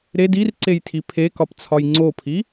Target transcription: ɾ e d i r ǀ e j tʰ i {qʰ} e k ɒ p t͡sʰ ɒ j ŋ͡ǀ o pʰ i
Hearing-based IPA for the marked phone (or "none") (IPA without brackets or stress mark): pʰ